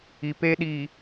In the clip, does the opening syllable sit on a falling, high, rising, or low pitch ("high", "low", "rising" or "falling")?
low